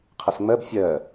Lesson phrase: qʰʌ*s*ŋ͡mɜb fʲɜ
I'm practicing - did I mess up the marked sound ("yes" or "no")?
no